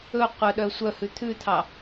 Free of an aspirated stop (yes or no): no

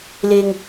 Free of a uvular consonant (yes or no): yes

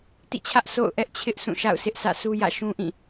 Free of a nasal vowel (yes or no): no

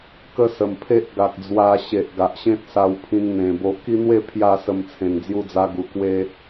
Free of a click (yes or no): yes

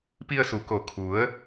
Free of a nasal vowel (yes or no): yes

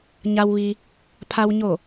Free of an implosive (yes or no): yes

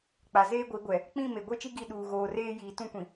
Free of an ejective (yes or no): yes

